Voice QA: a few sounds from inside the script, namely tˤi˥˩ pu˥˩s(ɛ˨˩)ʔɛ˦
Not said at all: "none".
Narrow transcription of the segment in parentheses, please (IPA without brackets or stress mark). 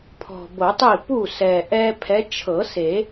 ɛ˨˩